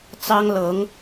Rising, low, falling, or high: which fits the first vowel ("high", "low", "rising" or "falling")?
high